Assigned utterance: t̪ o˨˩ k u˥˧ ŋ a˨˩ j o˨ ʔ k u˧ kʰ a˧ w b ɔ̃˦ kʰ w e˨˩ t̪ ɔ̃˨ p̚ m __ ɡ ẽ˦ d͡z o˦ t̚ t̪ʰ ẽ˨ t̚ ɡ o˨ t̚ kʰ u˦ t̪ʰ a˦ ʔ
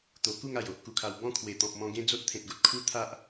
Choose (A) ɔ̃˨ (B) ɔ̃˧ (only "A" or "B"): B